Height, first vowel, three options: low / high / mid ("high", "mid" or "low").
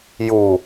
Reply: high